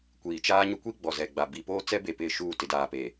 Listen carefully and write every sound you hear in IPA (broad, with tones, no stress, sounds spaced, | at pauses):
kʷ iː˨ t͡ʃ aː˦ ɲ ʊ˦ kʷ i˦ ɡ͡b ɔ˨ z ɛ˨ ɡ͡b a˨ b i˨ p oː˦ t͡s ɛ˦ b e˨ p ɪ˦˨ ʃ uː˦˨ t ɪ˨ d aː˨ p eː˨